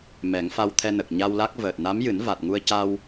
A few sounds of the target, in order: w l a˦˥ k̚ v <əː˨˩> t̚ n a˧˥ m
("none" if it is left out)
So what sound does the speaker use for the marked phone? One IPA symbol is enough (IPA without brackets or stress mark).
əː˨˩